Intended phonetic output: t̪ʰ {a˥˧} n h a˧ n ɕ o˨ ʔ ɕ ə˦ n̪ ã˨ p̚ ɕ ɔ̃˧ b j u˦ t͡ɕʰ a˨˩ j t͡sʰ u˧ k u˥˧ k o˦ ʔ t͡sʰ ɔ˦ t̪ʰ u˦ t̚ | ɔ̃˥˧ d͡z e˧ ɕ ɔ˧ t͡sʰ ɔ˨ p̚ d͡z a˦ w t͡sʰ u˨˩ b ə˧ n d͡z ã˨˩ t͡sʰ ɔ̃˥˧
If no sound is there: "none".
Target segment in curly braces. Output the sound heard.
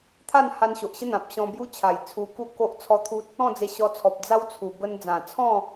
a˥˧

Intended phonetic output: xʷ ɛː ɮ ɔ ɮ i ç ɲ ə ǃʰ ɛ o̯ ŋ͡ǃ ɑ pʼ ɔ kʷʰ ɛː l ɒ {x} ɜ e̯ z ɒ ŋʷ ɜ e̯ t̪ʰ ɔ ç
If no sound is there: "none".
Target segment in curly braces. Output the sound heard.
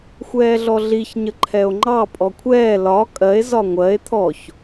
kʼ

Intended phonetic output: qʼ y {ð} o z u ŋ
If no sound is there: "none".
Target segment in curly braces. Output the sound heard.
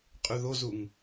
ð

